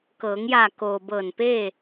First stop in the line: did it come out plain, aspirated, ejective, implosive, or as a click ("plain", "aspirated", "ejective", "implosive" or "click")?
plain